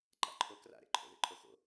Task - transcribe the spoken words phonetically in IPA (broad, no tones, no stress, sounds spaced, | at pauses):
ǃ a̰ ǃʰ o k r a̰ ɾ ḛ ǃʰ o̰ ð ḛ ǃʰ o x o̰